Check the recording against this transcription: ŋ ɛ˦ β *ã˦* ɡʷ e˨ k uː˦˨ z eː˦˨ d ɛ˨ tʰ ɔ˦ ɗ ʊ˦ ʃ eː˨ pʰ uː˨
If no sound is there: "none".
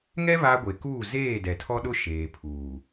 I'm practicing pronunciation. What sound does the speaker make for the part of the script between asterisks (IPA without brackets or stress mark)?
a˦